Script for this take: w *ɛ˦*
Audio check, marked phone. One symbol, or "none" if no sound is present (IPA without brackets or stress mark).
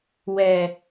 ɛ˨